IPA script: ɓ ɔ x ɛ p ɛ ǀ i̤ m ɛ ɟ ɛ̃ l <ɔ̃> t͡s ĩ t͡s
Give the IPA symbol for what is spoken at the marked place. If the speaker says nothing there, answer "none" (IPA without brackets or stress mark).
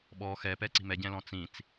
ɔ̃